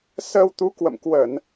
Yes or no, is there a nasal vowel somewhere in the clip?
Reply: no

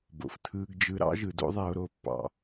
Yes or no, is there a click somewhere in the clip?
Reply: no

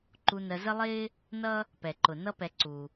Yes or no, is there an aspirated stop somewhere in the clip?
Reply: no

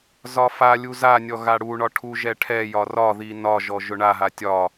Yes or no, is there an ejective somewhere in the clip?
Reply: no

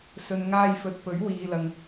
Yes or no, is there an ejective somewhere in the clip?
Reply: no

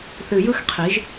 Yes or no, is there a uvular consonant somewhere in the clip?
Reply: yes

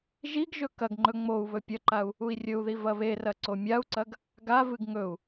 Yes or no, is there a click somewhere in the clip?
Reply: yes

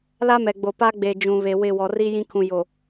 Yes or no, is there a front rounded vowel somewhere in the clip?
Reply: no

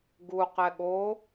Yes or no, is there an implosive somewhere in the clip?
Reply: yes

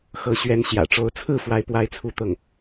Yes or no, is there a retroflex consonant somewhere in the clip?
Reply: yes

